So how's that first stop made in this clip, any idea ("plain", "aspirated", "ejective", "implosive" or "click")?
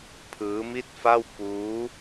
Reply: aspirated